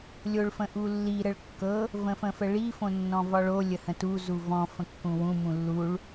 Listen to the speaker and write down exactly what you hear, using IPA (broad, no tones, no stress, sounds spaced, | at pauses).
lʲ o ɭ f ə̃ ʔ u lː i ɾ ə ɭ kː ɤ | v ə̃ f ə̃ f ə ɭ i f õ nː ɔ̃ v ɒ ɭ o lʲ ə h ə̃ t u z u v ɔ̃ f ə̃ kː ũ w ũ m ũ lː u ɭ